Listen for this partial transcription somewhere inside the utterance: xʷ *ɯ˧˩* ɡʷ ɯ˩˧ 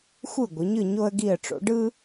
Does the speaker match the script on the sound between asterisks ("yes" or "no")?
yes